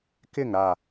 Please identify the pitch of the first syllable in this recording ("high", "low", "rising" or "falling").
falling